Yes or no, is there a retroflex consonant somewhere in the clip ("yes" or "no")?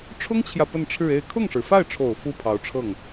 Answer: yes